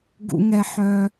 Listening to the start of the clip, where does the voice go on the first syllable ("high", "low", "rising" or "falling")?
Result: low